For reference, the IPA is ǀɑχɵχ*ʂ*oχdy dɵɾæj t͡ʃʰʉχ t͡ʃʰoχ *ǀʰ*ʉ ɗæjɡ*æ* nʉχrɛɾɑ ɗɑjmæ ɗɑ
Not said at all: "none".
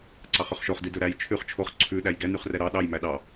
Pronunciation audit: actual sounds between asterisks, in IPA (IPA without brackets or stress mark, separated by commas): ʃ, ǀʰ, ɛ